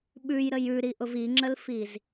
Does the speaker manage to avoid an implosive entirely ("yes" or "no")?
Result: no